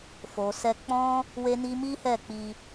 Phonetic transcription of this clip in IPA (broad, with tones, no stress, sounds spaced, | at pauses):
f o˨ s ɛ˧ k͡p ɔ̃˦ | w e˦ n i˦ m i˦ h ɛ˦˨ k͡p i˧